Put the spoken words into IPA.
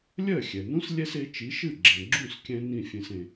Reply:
lʲ ɜ˥˩ xʲ ɛ˩ n ũ˥ s lʲ ɛ˥ s e˩˥ t͡ʃ i˩˥ ʃ ɨ˥˩ ɡ͡ǁ ɛ̃˩ ɡ͡ǁ ũ˥˩ s kʲ ɛ̃˧ n ĩ˥˩ fʲ ẽ˧ s ẽ˩

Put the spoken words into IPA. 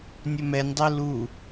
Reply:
nʲ ɵ m ɛ nʲ dˤ ɜ l u

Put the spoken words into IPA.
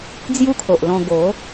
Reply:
d͡z j u˦ kʰ o˨ ʔ l ɔ̃˧ ɡ o˨˦

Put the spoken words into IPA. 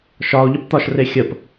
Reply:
ʃ ɒ o̯ ʎ ə p t̪ ɒ ʃ r e xʲ ə p

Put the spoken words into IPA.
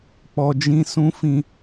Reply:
k͡p ɔ˨ d͡ʒ ĩ˧ s ũ˦ f ĩ˦˨

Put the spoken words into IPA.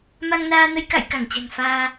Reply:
m a˧ ŋ n aː˧ n ə˧ j k a̰˧˨ j k a˧˩ ŋ t͡ɕ a̤˨˩ ŋ f aː˧

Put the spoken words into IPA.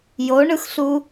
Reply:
j o ɳ ɯ x ɬ u

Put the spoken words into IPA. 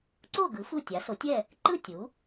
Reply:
ǀ o˥˨ ɡ ɯ˩˥ f u˥˨ tʲ a˩˥ s o˩˥ tʲ ɛ˥˨ | ǃ ɯ˥˨ tʲ u˩˥

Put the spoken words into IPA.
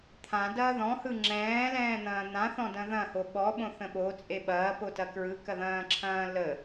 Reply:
t̪ʰ ã d ɐː ð ɔ̃ h ɯ ŋ͡ǁ ɛ̃ː l ɛ̃ː n̪ ɐ̃ː n̪ ã θ ɔ̃ d ɐ̃ ð ɐ̃ h o ɓ ɔ ɓ õ θ ə̃ ɓ o t͡sʼ e ɓ ɐː p o t ɐ k ɹ ɯ k ɐ ð ɐ̃ː ǁʰ ɐ̃ː l ə

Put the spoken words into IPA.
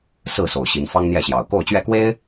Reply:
s ɹ̩˥˨ s o˨˩ ʊ̯ ɕ i˨˦ n f ɑ˦ ŋ n̪ j ɛ˥˨ ɕ j ɑ˨˩ ʊ̯ k o˥˨ ʊ̯ t͡ɕ ɥ ɛ˥˨ k w e˦ ɪ̯

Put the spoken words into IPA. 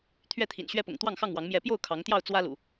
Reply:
t̪ʰ ɥ ɛ˥˨ t̪ʰ ḭ˨˩ n ɕ ɥ ɛ˦ p ʊ̰˨˩ ŋ t̪ w ɑ˥˨ ŋ x ɑ˥˨ ŋ w ɑ˨˦ ŋ m j ɛ˨˦ p j o˥˨ ʊ̯ kʰ ɑ˨˦ ŋ t̪ j ɑ˥˨ ʊ̯ t͡s w ä˦ l ṵ˨˩

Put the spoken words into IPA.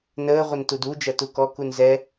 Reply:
n əː ʁʷ ə n t u d u d͡ʒ ɐ t u k ɔ k u n z ɛ

